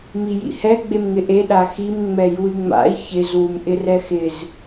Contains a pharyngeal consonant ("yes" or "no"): no